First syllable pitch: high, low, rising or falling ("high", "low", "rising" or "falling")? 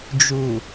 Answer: low